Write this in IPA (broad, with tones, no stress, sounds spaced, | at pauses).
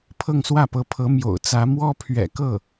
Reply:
pʰ ɤ˥˧ ŋ s w ä˥˩ p ɤ˧˥ pʰ ɤ˧˥ m j o̰˨˩ ʊ̯ t͡s ä˧˥ m w ɔ˥ pʰ ɥ ɛ̰˨˩ k ɤ˥˩